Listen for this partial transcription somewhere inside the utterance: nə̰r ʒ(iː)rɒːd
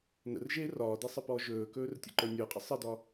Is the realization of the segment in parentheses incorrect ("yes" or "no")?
yes